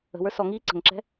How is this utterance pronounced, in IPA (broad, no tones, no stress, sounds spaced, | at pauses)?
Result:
ə̤ w ə˞ s ɔ ŋ iː ǀ ə̤ ŋ ǁ ɛ̤